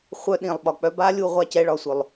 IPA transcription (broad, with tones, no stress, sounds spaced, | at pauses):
χʷ œ˦ ɗ ĩ˨ lˠ ɓ ɒ˨ k͡p œ˦ b a˦ lʲ u˦˨ ʁʷ a˦ c ɛ˨˦ ɭ ɒ˨ sʷ œ˨ lˠ